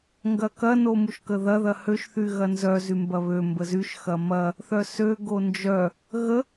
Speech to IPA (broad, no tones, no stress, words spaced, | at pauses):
ŋɡɐkɐ nomuʃkəðɐ ðɐhøʃ θyɣɐnzœ zymbɐβø mbəzyʃ xɐmɐ | θœsø ɡond͡ʒœ | ɣə